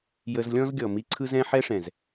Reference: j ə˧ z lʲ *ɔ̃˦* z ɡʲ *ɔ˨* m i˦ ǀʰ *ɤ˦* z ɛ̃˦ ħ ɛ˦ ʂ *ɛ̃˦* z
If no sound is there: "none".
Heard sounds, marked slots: ɔ̃˦, ɔ˨, ɯ˦, ɛ̃˨

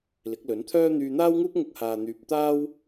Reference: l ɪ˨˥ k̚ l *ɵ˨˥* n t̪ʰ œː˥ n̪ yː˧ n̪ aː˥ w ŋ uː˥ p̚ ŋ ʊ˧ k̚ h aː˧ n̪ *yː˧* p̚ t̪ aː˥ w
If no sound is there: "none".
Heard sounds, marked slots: ɵ˨˥, yː˧

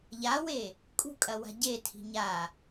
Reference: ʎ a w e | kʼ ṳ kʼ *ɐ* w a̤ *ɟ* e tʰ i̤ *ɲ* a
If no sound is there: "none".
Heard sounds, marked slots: ɐ, ɟ, ɲ

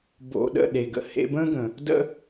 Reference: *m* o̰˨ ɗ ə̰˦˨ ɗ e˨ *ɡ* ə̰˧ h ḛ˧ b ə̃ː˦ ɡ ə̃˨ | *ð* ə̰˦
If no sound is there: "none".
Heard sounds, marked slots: b, ɡ, d

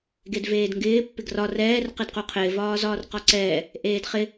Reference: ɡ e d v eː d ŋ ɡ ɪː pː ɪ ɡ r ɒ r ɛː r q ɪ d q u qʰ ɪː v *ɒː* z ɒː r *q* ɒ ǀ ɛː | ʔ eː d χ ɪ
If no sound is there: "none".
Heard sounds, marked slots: ɒː, q

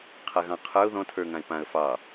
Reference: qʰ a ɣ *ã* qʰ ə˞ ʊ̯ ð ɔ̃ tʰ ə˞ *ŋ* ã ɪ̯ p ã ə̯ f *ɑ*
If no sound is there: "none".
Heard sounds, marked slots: ɑ̃, ŋ, ɑ

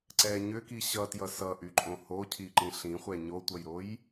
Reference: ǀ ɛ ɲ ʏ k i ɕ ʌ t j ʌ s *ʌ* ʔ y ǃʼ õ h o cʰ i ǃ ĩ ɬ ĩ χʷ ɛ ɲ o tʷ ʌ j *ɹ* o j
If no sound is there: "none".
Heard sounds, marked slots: ʌ, ɾ

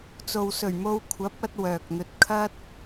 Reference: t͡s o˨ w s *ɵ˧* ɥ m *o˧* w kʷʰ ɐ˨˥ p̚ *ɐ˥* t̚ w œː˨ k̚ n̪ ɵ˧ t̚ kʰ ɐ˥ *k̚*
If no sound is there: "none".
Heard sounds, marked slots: ɵ˨˩, o˧, ɐ˧, t̚

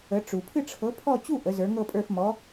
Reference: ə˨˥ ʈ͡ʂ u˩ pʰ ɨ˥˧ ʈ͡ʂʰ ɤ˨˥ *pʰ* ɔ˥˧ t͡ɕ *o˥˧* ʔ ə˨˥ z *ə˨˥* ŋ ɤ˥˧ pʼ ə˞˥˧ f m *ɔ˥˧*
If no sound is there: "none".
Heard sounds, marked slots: pʰ, u˥˧, ə˞˨˥, ɔ˨˥

